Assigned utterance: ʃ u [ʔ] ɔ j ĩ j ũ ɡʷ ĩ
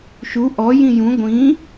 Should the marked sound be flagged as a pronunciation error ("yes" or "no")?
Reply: no